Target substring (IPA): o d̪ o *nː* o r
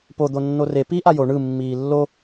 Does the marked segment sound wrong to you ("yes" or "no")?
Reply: no